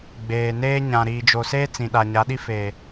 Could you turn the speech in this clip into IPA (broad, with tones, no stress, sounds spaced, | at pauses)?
ɡ͡b eː˨ n eː˦ ɲ ã˨ ɾ iː˨ d͡ʒ o˨ s eː˦ t͡s ĩ˨ ɗ a˨ ɲ a˨˦ ɗ i˦ f eː˨